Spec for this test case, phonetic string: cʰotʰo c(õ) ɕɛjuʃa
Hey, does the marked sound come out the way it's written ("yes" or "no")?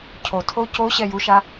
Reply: no